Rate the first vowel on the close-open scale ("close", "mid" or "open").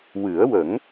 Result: close